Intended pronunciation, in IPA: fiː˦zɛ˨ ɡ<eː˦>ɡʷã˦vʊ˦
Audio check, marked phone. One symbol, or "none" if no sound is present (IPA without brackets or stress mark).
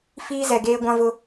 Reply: eː˦